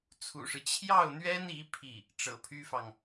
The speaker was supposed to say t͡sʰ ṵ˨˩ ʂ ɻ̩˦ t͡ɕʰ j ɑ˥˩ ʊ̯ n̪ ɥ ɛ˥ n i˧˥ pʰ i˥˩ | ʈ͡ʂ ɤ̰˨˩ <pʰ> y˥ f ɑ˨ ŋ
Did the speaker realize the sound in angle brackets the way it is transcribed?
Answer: yes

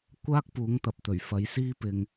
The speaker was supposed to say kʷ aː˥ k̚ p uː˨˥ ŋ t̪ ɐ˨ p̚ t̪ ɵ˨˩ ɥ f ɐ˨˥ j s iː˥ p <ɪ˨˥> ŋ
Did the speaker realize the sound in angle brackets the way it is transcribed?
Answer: no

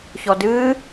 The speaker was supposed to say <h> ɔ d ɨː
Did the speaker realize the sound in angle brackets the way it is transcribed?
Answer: no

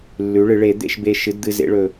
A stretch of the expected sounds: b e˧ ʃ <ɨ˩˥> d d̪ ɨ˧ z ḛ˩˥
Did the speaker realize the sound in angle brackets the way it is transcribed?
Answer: yes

